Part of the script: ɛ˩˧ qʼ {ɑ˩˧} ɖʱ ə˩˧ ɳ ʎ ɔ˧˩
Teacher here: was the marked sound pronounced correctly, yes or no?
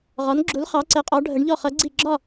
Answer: no